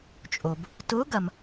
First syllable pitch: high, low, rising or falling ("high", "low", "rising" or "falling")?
low